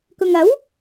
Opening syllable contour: low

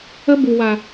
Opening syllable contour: high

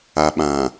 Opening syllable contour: low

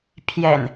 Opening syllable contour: low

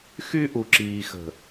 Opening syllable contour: high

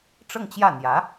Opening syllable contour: falling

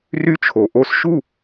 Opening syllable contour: high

